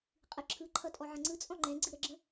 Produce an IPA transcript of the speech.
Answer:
qʼ ɯ ǁʰ ɯ ǃʰ ʌ tʼ ɔ ʕ ə̃ ŋ͡ǀ ɯ t͡sʼ ɔ̃ ŋ͡ǃ ɛ̃ ɡ͡ǀ ɨ ɾ ə ɡ͡ǁ ə̃

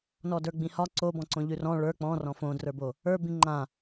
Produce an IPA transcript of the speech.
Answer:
n ɔ d ə˞ ɡ͡b ĩ h ɒ ǀ o b ɔ̃ ǀ õ ʎ ʉ r ɔ̃ ɭ ə˞ k͡p ɔ̃ r ɔ̃ f õ d r ə˞ b o | ə˞ b ĩ ŋ͡ǃ ã

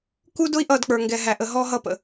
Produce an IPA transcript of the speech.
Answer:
k u˦ d ʊ˦ i̯ ʔ ʌ˦˨ d k͡p ə˞˨ ŋ ɡ ɛ˨ ɦ æ˨ ʔ ə˨ ɦ ɔ˦ ɦ ʌ˦˨ p ə̰˨

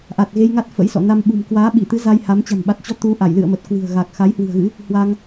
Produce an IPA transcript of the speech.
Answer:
ʔ a˨˩ t̚ ɣ e˧ j ŋ a˦˥ t̚ f ə̰˧˥ j s ɔ̰˧˨ n a˧ m ɓ ṳ˨˩ m k w aː˨˦ ɓ i˧˩ t̪ ɨ˨˦ z a˧ j h a˨˦ m t͡ɕ a̤˨˩ m ɓ a˨˩ t̚ t͡ɕ ɔ˧ t̪ u˨˦ ʔ a˧˩ j l ɨ̰˧˨ ə̯ m ə˨˩ t̚ k w ɨ̤˨˩ ə̯ ɣ a˨˩ k̚ x a˨˦ j h w ɨ̤˨˩ ə̯ ɣ ɨ̰˧˥ | h w a˧ ŋ

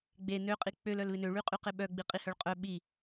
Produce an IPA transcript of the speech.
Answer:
ɡ͡b e n ø qʼ i k͡p ø l œ l β ɪ n ø ɭ y qʼ y q ɪ ɓ œ ɡ͡b i qʼ i h œ ɭ qʼ œ ɓ i

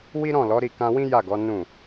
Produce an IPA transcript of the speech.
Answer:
w i˦ ɾ ɔ̃˦˨ l ɔ˨˦ ɾ i˦˨ k ã˧ w ĩ˦ j a˦˨ ɡ ɔ˨˦ n ũ˦˨

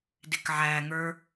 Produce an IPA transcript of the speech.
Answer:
d ɪ k ʕ æ ŋ ə˞

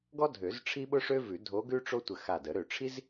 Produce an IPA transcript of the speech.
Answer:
ɡ ɔ˥ dʱ ø˨˩˦ z ʈ͡ʂʰ i˥ ɓ ʊ˥ ʂ ø˥ v ʉ˨˩˦ dʱ o˧˥ ɡ ʉ˥ ʈ͡ʂ o˥ tʷ ə˧˩ x a˧˩ d ə˨˩˦ ɾ ø˧˩ ʈ͡ʂʰ i˥ z

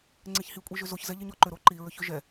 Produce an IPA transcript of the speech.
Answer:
ŋ͡ǀ e ç h i kʷʼ i ʒ ʏ z o ç z ɛ ʎ e ɲ ɔ ǃ ʏ ɾ o ǃ i ɹ ʏ ç ʏ ʒ ɛ

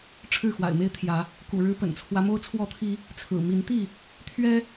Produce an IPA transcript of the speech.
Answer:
ʈ͡ʂʰ ɻ̩˥˨ x w a̰˨˩ ɪ̯ m e˦ ɪ̯ t̪ʰ j ä˨˦ | k ṵ˨˩ ɻ ɻ̩˨˦ p ə̰˨˩ n t͡sʰ w ä˦ m o˦ ʊ̯ t͡sʰ w ɔ˥˨ t̪ʰ i˦ | t͡sʰ ɹ̩˨˩ m i˨˦ n t̪ i˥˨ | t̪ʰ ɥ ɛ˦

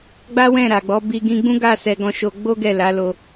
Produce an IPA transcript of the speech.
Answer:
ɡ͡b a˦ w ɛ̃˦˨ ɾ a˨ ɡ͡b ɔ˨˦ b i˧ ɡ ĩ˧ ɡ͡b ũ˦ ɡ a˦˨ s ɛ˨ ɡ ɔ̃˧ ʃ o˧ ɡ͡b o˦ ɡ ɛ˦˨ l a˨˦ l o˧

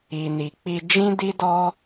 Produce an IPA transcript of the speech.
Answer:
i˨ n i˨ k͡p i˧ d͡ʒ ĩ˦ d i˦ d ɔ˦

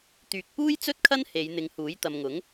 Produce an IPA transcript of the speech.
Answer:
t̪ yː˨ k̚ p uː˥ j t͡s ɵ˥ t̚ kʰ ɐ˥ n h e˨˧ j n̪ ɪ˨˧ ŋ h uː˨˥ j t̪ ɐ˨ m ŋ ʊ˨˥ ŋ

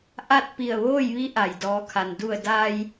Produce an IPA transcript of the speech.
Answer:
ʔ a˥˨ t̚ p i˧˩ ə̯ ʋ oː˥˨ j ʋ i˧˥ ʔ a˩ j d ɔː˩˧ kʰ a˩ n d u˧˩ ə̯ d aː˧ j

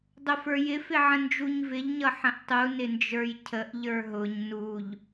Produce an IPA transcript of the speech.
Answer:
dˤ ʊ f ə˞ j ɪ f ɪ ʕ ə̃ n d͡ʒ u ɲ v ɪ ʎ ɲ ʌ ħ ə̃ ʔ tˤ u n ɪ n d͡ʒ ə˞ j cʰ ə ʔ ʎ ə˞ ɦ ʊ ɲ n u ʎ

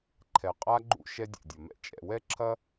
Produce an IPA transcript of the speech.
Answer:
ǃʰ ɛ˨ qʼ a˦ ɡ͡ǃ ṵ˦ ʃ ɛ˦ dʲ ɛ̰˨ dʲ ɐ˨ m ɛ̰˦ t͡ʃʼ ɛ̰˨ w ɛ˦ ǁʰ ɐ˦

